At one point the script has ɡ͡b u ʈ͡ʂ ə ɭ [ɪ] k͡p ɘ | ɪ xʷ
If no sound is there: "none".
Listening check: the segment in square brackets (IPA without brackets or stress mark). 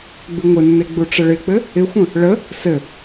ɪ